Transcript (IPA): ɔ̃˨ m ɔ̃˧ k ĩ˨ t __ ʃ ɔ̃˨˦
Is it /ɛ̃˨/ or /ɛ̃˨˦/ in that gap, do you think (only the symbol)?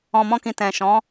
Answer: ɛ̃˨